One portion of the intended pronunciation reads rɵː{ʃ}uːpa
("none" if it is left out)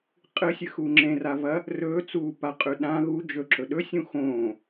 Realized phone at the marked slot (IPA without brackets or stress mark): t͡s